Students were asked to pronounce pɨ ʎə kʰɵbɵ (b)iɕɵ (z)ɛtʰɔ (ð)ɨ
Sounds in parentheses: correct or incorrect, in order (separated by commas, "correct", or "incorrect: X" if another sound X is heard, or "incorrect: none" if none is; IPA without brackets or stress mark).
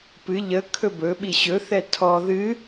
incorrect: ɓ, incorrect: θ, correct